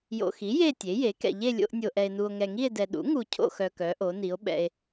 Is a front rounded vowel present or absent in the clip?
present